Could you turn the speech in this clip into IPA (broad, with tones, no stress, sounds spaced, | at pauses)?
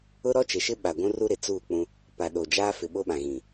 ʊ˦ ɾ ɔ˦ t͡ʃ e˨ ʃ ɪ˦ ɓ a˨ ɡʷ ũ˦ r u˦ ɾ ɪ˨ t͡s uː˦˨ k͡p ũ˦ | p a˨ ɗ o˨ d͡ʒ aː˦ f ɪ˨ ɓ o˦ ɓ ã˨ ɣ ĩ˨